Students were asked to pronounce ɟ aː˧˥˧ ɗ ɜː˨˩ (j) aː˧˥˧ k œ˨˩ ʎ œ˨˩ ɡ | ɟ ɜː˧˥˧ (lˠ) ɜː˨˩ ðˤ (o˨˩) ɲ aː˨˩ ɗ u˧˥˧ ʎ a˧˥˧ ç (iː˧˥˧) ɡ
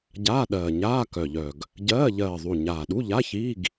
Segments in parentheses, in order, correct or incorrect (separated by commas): incorrect, incorrect, incorrect, correct